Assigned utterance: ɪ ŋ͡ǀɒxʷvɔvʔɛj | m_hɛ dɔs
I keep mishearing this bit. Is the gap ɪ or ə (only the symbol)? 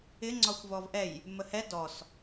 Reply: ə